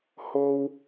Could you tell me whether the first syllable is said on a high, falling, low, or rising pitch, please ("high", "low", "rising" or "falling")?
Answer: high